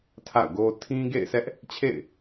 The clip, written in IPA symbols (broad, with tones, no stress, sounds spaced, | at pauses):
tʰ a̰˦˨ ʊ̯ ɡ o˦ tʰ ĩ˦ ɡ ḛ˦˨ ɪ̯ s ɛ˦ ʔ | t͡ɕʰ ḛ˦˨ ɪ̯